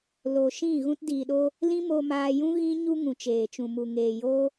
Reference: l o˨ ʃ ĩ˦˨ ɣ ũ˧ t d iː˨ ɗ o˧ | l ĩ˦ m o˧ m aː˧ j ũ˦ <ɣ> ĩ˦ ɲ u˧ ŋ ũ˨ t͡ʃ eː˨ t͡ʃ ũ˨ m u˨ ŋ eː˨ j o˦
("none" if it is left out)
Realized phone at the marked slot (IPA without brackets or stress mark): ɣ